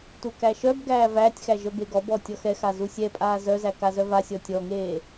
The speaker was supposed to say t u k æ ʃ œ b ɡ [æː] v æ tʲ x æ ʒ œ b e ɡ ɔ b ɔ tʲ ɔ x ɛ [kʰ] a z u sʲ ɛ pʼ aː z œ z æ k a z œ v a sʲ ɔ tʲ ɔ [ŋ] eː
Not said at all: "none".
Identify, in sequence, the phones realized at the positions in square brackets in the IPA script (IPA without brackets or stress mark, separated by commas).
æː, x, ŋ